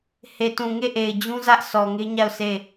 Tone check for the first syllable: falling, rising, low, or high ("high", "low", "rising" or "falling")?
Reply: low